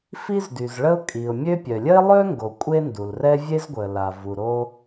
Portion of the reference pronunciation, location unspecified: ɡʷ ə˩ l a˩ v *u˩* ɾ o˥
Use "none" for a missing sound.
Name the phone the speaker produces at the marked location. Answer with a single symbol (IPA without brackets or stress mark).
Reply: u˩